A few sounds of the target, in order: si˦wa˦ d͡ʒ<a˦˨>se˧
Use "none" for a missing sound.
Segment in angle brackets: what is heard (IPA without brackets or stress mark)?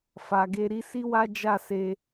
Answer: a˦˨